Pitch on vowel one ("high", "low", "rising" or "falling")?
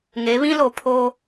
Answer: rising